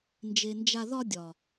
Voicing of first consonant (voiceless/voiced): voiced